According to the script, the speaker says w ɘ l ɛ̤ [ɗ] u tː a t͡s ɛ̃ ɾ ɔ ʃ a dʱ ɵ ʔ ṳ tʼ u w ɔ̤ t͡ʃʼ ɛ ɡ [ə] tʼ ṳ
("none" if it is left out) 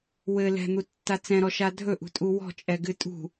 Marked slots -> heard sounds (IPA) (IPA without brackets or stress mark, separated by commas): n̪, ɨ